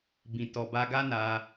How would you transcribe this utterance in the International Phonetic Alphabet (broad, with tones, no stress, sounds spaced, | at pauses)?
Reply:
b ĩ˨ t ɔ˨ b a˧ ɡ a˦ n a˧